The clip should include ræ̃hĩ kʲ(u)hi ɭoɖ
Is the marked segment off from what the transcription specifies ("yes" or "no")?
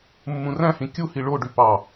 no